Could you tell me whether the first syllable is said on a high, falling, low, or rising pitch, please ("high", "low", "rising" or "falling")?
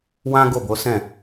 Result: high